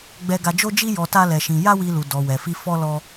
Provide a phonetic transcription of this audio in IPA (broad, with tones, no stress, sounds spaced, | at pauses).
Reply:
ɡ͡b ɛ˧ ɡ a˧ d͡ʒ o˦ d͡ʒ i˦ j ɔ˧ t a˦ l ɛ˧ ʃ ĩ˧ j a˦ w i˧ l u˨ d ɔ˨ w ɛ˨ f i˧ f ɔ˦ l ɔ˦